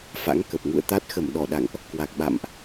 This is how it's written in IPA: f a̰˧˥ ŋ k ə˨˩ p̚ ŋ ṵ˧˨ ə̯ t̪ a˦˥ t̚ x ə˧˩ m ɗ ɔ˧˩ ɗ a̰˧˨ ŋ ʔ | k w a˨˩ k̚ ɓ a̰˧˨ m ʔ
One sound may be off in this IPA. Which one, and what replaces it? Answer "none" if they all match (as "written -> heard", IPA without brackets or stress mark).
none